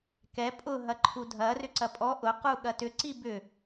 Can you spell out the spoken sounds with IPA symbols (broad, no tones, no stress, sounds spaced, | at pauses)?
k ɛ pʼ ʊ ɦ ɐ ǃʰ u dʱ ɐ r ʏ ǀ ɐ pʼ ɔ ʔ ʊ q u ɠ ɐ t ʏ ǀ i b ʏ